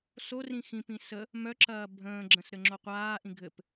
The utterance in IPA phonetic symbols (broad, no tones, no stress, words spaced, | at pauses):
so rĩxĩpĩ sə | mœǁɐː bʱə̃ːɡ͡ǁə̃s ɾɘŋ͡ǁoqʷaːʔĩ ɡʱɘp